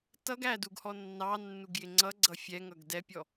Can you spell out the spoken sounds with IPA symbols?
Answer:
tʌɡ æduɡ hɔnːɑnːuɡ jɪŋ͡ǀʌɡ͡ǀʌ fʲɛ ŋʌɡdɛpʲɔ

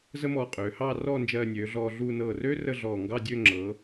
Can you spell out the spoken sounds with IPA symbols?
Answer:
zə˥mɔː˧qʼøː˩˧ hɑː˥˧rɔː˥˧ nd͡ʒɜː˧nʲøː˩˧ɮɔː˧ ɮuː˧nɤː˧˩røː˥ rə˥˧ɮɔː˧˩ ŋɡɑ˥˧dʲø˥˧ŋ͡ǁɤː˩˧

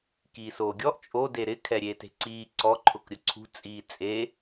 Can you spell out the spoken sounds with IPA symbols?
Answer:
kiːsoːɡʲɔʔ t͡ʃʼode ɾɪ kʰɛɾʲete̤ǀiː ǀɔ ǃʰʊkɾʲʊǀʰṳ t͡sʼiːt͡sʼe

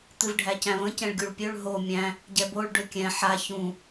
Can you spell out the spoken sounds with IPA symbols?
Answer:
t̪ɨvɖʱæcæ̃və̃ cɛ̃ɭɡʲuɭpʲøɭ ɦo mʲæ̃ | ɟɛboɭ ɖøkʲɛ̃ ħa çũ

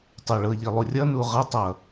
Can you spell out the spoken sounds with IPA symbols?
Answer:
tˤə˞ɭɤʎi lˠurʲʌnu ʁʌtˤʌ

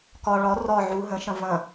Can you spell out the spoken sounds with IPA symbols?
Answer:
kɒ ɭɒ rɒ ʕu ɦə̃ʃɐ̃ vɐ̃

